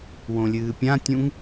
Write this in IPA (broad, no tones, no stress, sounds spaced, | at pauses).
w õ lʲ ɨː pʲ ã tʲ ũ ŋ